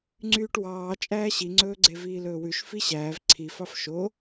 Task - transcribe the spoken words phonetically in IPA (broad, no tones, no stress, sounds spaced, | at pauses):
ŋ͡ǀ yː ʈ w ɑː t͡ʃʼ æː ɕ i ŋ͡ǀ ɵː ɡ͡ǀ e v iː l ɵː w ʉ ʃ f i ɕ æː v ǀʰ i f ɑ f ʃ o